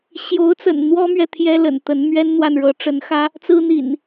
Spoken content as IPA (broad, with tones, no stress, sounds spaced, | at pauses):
ɕ j o˨˦ ʊ̯ t͡s ə̰˨˩ n n̪ w ɔ˦ m ɥ ɛ˨ t̪ʰ j ɛ˦ l ə̰˨˩ n t̪ ə˨˦ n m ɥ ɛ˦ n n̪ w a˨ n ɻ ɤ˨˦ ʈ͡ʂ ə˨˦ n x ä˦ | t͡s ɹ̩˦ n̪ ḭ˨˩ n